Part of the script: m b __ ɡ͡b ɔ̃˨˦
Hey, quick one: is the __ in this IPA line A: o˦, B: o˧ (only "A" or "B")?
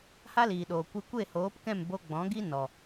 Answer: B